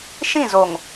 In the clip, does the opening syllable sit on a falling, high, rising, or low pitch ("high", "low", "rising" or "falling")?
falling